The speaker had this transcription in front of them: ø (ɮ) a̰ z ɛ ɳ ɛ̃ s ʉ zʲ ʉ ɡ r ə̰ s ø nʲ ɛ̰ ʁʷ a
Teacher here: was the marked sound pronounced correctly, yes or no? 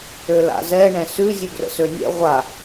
no